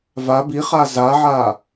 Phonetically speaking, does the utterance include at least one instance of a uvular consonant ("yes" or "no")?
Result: yes